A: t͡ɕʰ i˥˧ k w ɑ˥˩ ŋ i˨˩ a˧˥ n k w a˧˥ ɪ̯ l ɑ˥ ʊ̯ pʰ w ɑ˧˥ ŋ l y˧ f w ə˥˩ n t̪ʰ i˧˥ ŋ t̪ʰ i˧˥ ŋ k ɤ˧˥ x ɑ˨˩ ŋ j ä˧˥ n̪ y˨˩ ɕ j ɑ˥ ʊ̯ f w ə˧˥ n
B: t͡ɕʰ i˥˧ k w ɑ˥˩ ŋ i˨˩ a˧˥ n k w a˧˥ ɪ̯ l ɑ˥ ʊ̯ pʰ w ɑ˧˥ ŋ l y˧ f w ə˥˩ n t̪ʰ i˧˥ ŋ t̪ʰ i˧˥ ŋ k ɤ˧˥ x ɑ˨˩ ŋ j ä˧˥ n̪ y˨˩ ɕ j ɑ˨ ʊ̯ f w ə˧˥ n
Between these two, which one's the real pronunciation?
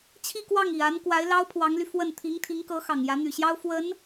A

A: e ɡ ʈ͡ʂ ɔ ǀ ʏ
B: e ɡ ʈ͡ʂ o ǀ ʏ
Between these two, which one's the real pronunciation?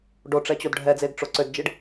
B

